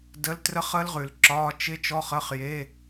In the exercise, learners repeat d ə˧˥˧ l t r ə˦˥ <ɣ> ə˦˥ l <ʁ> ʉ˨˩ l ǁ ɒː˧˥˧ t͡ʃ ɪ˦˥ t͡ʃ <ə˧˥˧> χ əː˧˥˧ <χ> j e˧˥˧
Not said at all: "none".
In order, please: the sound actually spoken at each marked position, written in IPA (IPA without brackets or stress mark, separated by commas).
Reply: χ, ʁ, ɔ˧˥˧, χ